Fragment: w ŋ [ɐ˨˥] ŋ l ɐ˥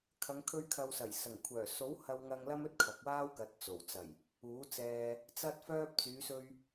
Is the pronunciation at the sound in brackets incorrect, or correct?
incorrect